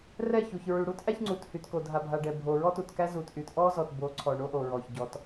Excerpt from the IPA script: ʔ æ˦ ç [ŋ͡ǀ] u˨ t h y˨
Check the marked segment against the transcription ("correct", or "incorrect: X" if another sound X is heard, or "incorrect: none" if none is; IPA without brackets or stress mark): correct